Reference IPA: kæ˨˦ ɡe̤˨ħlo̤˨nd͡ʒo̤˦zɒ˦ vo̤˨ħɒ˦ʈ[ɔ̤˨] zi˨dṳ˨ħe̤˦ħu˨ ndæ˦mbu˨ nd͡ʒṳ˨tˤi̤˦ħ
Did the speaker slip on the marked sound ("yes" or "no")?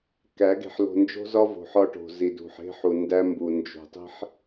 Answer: yes